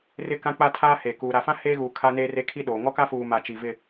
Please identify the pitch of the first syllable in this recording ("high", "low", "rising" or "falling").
falling